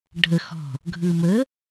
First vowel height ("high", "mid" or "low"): mid